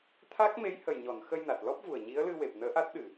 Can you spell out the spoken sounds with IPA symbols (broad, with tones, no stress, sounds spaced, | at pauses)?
t̪ʰ a˦˥ k̚ m e˧˥ j h ə˨˩ j ɲ ɔ˨˩˨ n x ə˧ j n a˨˩ t̚ l ɔ˦˥ p̚ v u˨˩ ə̯ ɲ i˧˥ ə̯ l ɨ˧ w e˨˩ p̚ n əː˧˥ ʔ a˦˥ t̚ ɗ ɨ˨˩